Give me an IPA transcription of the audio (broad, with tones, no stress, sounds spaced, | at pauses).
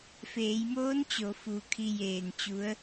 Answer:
f eː˩˧ j m oː˧˥ n t͡ɕ o˩˧ f u˧˩ kʰ i˧ j eː˧˩ n t͡ɕ u˧˥ ə̯